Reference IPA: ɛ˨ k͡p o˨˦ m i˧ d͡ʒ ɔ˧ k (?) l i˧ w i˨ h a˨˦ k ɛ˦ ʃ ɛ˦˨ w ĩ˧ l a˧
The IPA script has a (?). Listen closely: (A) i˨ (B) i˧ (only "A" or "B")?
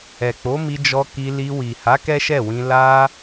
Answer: B